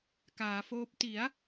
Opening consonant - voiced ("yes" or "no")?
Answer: no